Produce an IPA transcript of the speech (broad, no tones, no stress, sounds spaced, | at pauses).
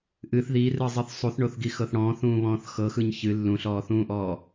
ʔ ɨ θ ð iː r ɯ zˤ ɨ θ sˤ u θ ɳ o θ ɡ i x ɤ θ ɽ ɔ̃ː θ ũː β ɔ̃ː θ x ɤ x ɯ ɲ ç ɨ lː ũ ɬ ɔː θ ũː ʔ ɔː